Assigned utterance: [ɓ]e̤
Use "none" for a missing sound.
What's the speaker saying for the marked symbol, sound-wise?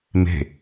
m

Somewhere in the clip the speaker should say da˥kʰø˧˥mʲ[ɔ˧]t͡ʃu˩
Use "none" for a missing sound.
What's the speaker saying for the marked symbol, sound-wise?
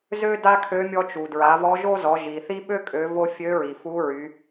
ɔ˧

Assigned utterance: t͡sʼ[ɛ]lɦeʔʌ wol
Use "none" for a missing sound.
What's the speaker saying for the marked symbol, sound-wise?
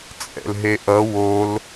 ɛ̰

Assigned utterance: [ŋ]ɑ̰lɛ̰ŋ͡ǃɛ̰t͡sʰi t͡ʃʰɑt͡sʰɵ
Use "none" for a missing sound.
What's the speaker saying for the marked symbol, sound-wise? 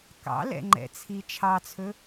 k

